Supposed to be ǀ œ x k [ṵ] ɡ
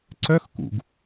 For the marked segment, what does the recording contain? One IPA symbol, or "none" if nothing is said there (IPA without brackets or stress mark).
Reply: ṵ